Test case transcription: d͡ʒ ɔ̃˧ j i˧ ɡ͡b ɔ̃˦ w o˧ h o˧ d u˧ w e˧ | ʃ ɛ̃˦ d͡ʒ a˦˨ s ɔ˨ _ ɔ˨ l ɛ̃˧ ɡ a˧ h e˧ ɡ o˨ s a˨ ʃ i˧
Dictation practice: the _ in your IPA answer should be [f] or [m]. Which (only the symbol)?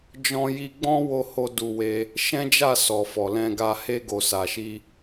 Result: f